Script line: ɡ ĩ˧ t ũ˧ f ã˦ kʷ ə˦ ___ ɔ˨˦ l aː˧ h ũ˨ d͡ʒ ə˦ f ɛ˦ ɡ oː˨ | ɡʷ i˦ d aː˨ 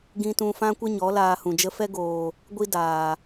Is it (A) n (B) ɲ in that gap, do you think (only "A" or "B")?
B